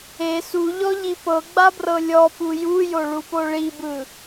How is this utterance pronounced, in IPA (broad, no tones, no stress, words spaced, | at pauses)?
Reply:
e suʎɔʎi pɤɡ͡babrɤ lʲɔpu jujoɭupo ɭibɯ